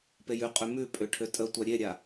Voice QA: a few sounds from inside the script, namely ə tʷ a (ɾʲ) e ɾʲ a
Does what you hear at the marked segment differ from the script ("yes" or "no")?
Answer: no